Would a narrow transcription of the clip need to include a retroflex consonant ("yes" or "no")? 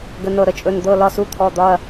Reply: no